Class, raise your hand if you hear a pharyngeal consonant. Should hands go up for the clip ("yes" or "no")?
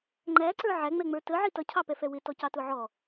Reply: yes